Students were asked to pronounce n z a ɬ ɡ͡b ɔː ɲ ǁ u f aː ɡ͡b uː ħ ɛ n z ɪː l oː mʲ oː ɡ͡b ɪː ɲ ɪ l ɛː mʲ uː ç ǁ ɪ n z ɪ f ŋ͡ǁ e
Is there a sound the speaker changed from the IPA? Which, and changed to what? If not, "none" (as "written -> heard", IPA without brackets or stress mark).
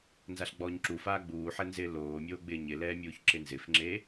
none